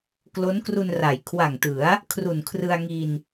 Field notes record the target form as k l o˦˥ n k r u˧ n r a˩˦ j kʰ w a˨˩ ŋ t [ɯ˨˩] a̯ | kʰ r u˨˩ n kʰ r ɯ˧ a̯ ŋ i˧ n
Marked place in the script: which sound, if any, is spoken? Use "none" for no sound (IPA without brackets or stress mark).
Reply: ɯ˩˦